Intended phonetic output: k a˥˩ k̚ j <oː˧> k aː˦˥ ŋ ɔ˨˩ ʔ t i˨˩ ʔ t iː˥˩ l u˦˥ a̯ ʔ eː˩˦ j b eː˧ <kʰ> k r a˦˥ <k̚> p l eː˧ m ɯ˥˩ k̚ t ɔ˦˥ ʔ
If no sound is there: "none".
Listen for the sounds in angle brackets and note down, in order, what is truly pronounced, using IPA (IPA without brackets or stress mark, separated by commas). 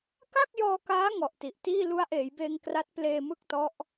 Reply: ɔː˧, ŋ, t̚